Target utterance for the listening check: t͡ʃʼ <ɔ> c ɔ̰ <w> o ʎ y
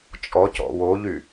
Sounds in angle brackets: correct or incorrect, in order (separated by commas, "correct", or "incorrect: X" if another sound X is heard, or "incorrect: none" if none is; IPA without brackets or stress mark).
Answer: correct, correct